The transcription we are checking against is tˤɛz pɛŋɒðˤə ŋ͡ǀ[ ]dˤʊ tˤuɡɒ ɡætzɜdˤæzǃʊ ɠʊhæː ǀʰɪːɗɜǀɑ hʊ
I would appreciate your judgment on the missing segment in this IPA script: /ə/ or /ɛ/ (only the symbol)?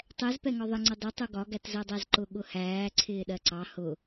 ə